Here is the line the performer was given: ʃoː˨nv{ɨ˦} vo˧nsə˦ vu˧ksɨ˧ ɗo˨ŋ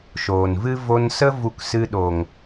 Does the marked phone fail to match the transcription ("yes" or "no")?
no